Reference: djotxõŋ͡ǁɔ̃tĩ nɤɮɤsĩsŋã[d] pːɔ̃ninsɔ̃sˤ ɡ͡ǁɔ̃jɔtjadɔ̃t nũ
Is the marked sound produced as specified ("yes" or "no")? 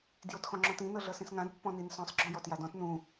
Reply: yes